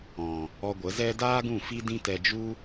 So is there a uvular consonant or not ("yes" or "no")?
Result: no